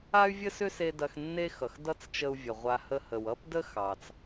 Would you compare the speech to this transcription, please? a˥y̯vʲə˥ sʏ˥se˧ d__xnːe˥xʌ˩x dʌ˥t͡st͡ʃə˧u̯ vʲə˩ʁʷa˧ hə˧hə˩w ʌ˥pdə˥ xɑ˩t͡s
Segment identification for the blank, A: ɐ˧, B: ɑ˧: A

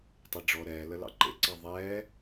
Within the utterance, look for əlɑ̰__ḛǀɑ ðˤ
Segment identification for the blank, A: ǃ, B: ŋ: A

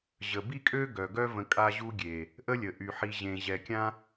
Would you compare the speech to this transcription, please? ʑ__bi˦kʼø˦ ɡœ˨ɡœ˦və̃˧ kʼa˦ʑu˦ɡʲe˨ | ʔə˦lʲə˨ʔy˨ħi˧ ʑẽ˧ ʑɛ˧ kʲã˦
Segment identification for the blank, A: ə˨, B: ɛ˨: A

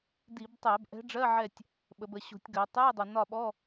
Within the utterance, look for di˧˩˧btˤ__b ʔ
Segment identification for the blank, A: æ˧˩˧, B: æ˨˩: A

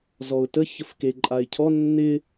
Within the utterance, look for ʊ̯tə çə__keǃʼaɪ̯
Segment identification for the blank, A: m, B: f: B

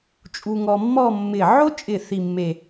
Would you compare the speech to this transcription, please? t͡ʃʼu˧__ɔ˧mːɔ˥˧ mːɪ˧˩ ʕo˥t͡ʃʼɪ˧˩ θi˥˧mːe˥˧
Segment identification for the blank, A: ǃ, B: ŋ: B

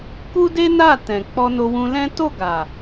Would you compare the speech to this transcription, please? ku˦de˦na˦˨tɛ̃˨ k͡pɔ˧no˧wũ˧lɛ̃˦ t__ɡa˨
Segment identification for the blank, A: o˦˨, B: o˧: A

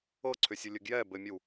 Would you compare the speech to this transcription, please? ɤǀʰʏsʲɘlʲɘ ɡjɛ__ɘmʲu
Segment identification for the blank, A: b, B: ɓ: A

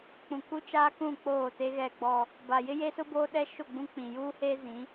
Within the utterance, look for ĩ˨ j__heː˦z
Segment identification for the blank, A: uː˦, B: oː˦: A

